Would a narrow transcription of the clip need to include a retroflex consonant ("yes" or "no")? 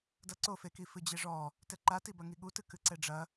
yes